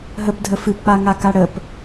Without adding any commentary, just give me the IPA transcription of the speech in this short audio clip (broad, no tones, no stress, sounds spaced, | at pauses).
ɦ ə p dʱ ə f ɨ p k͡p a ŋ a k a ɽ ə p